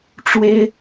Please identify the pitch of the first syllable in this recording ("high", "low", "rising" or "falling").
high